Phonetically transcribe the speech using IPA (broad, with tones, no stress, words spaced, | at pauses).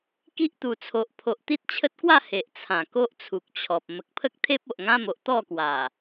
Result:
ki˦ʔt̪u˨˩t͡sʰo˨ʔ pʰo˨ʔt̪i˦t̚t͡ɕʰə˦t̚kwa˥˧ he˨ʔt͡sʰã˨˩ ko˦ʔt͡sʰu˨k̚t͡ɕʰɔ˨p̚ mə˨k̚pʰə˦k̚t̪ʰe˦p̚ o˨ʔŋã˦mo˨ʔ t̪ɔ˥˧kwa˨˩